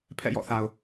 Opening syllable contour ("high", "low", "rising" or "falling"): falling